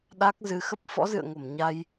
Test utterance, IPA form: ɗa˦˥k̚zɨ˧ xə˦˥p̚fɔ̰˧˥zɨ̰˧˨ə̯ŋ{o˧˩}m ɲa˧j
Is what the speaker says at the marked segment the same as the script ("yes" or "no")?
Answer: yes